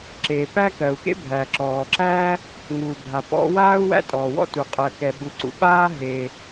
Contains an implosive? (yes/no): yes